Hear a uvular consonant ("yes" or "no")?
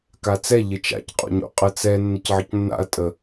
yes